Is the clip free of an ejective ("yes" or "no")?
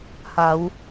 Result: yes